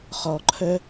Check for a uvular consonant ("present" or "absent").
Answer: present